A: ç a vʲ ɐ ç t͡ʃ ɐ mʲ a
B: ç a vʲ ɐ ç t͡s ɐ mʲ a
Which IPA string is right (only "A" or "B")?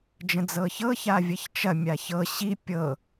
A